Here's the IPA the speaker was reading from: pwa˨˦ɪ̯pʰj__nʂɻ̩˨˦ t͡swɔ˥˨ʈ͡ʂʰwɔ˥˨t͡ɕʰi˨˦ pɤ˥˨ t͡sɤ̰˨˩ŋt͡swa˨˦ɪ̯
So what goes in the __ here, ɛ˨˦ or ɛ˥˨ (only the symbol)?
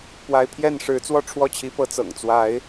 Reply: ɛ˥˨